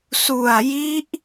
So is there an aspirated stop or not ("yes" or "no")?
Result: no